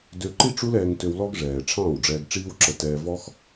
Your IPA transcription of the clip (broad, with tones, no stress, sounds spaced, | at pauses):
d ø˧ ǃ i˦ ʈ͡ʂ u˦ l ɛː˧ ŋ t ø˧ w l ɔ˦ ɡ ʐ ɛː˨ ʈ͡ʂʰ ɑ̃ː˦˨ w ɖ͡ʐ ɛː˧ ɡ ʈ͡ʂ iː˦ w ǁ ə˧ t ɛː˧ v ɔ˦ x